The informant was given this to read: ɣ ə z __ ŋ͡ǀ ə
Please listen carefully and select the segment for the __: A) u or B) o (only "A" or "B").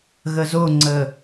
B